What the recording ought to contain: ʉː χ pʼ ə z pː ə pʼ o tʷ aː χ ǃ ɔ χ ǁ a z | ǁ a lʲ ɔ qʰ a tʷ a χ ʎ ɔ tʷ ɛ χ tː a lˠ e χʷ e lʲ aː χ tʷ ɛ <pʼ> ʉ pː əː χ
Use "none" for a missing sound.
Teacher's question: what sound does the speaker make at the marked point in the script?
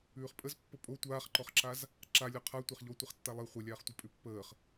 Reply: pʼ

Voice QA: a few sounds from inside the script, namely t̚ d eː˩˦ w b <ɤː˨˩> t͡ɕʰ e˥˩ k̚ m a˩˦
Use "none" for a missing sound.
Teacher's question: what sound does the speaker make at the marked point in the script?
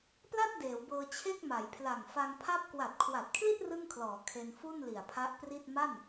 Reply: ɤː˧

